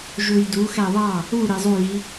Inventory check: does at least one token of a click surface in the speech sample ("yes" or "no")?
no